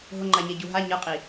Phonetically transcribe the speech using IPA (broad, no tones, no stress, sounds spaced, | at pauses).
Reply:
ɦ ʊ ŋ͡ǃ a ɲ ɛ ɟ u ɦ a ɲ ɤ qʼ i